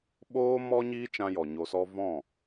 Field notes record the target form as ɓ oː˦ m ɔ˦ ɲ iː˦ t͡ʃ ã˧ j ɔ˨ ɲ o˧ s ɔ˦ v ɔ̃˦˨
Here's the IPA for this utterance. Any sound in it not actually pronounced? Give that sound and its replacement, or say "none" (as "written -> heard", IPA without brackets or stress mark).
none